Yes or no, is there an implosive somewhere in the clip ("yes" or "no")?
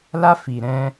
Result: no